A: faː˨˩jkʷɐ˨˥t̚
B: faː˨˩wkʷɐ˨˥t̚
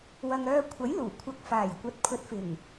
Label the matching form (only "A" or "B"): A